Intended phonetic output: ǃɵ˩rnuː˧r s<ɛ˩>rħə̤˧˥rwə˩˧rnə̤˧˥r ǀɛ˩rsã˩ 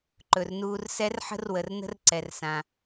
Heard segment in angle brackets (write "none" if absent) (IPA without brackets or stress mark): ɛ˧˥